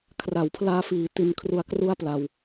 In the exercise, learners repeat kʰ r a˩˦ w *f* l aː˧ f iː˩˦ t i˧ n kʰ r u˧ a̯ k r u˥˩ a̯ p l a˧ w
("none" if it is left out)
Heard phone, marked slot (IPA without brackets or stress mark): pʰ